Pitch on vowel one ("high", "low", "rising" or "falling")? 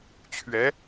rising